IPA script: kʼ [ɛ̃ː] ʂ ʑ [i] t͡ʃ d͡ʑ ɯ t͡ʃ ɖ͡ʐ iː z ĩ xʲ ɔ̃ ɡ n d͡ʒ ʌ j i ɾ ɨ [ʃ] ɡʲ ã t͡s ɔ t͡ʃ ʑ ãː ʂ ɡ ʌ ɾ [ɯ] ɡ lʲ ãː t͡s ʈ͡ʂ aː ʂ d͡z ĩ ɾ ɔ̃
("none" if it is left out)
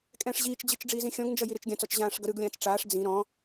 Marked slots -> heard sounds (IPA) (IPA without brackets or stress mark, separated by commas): ɛ̃ː, iː, t͡ʃ, ɯ